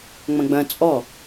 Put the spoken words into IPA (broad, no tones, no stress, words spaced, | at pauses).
ŋ͡mɐ̃ɡ͡bɐ̃ t͡sʼɔ